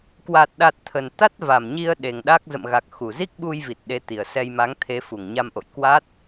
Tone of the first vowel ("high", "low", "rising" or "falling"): low